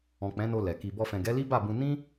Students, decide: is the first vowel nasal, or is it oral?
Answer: nasal